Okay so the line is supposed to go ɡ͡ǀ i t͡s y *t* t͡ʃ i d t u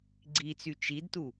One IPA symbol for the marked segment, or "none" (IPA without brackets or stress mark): none